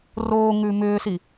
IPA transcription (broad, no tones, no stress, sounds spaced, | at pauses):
r oː ŋ ʉː m ʏː s i